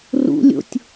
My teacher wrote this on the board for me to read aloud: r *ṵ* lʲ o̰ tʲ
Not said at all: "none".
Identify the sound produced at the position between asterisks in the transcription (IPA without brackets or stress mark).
ṵ